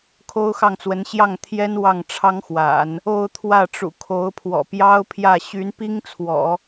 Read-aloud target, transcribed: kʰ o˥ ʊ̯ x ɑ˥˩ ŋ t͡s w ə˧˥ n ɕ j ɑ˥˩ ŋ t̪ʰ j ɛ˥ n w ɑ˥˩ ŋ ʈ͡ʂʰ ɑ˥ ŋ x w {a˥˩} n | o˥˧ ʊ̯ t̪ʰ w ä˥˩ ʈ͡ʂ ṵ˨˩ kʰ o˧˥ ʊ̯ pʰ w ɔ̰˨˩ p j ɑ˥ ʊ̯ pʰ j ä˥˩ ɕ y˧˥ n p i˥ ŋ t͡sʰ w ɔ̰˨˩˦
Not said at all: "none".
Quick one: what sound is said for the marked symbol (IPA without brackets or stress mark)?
a̰˨˩˦